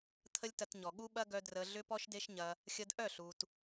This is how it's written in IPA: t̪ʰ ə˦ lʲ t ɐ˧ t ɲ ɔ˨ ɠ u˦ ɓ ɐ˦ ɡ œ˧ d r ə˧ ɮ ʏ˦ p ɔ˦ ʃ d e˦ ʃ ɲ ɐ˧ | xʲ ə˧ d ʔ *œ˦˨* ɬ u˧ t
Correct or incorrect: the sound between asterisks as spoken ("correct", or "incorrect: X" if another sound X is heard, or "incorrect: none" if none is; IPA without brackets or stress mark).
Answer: correct